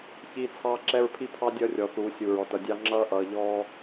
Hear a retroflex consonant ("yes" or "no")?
no